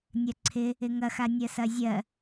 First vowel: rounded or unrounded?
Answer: unrounded